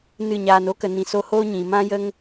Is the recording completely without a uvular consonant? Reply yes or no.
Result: yes